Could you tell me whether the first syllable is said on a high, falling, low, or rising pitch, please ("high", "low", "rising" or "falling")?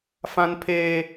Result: high